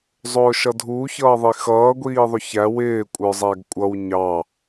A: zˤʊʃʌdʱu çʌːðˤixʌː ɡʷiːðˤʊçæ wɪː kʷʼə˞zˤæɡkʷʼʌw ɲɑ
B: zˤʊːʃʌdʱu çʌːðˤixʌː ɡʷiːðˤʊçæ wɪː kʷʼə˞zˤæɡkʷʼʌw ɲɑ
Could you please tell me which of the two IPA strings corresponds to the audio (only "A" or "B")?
B